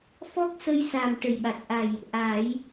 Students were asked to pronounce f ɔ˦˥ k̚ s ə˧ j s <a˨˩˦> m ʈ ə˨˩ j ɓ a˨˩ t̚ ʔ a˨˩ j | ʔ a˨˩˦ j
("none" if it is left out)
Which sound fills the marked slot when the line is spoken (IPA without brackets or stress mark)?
a˨˩